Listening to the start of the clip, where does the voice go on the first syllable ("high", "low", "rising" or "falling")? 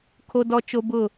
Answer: high